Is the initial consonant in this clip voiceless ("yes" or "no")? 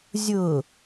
no